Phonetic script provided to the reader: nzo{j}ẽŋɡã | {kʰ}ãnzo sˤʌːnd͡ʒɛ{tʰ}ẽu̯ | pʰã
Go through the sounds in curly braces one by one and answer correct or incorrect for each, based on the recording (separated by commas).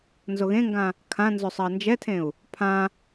incorrect, correct, correct